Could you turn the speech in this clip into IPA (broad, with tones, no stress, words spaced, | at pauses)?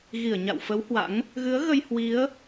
ɣi˧˩ə̯ɲa̰˧˨wfə˨˦w hwa̰˧˥ŋ | ɣɨ˨˦ə̯ɣə˧j hwi˨˦ə̯